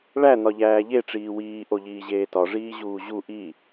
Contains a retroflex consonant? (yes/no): yes